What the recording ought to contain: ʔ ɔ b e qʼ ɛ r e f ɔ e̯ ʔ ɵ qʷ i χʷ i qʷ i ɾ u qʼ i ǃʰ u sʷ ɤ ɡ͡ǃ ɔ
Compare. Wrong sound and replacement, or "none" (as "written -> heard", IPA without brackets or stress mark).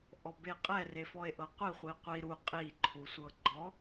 ɵ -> ɤ